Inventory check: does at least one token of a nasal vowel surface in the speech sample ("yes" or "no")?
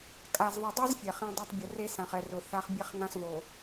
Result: yes